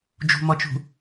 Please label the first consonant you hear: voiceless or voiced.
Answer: voiced